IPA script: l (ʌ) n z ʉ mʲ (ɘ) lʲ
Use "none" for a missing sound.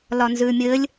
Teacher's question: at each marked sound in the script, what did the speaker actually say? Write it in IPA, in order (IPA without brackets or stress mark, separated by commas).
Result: ɒ, ɘ